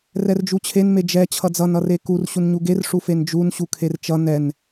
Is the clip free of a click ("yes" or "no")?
yes